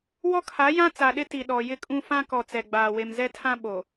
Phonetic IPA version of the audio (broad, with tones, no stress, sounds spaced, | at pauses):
w ɔ˦ kʰ a˨˦ j ã˦ t͡s a˨ ɗ ɪ˦ t i˨ ɗ ɔ˨ j ɪ˦ kʼ ũ˦ f ã˦ k ɔ˨ t͡s ɛ˨ ɡ͡b aː˨ w e˨ m z ɛ˦ tʰ ã˦ ɓ o˨